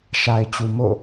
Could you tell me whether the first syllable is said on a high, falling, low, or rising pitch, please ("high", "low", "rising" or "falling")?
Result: low